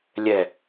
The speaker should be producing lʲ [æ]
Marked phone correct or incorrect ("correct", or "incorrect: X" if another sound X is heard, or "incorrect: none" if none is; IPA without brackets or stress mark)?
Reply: incorrect: ɛ